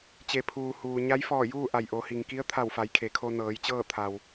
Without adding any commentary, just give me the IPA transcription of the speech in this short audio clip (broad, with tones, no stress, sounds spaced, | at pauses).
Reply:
t͡ɕ e˩˧ pʰ uː˩ h uː˩ ɲ a˧˥ j f ɔː˧˩ j uː˥˨ ʔ a˧˩ j ʔ o˩˧ h i˩ ŋ k i˧˥ ə̯ t̪ʰ a˧˩ w f a˩˧ j kʰ e˩ kʰ o˧ n ɤː˩˧ j t͡ɕ ɤː˥˨ t̪ʰ a˩ w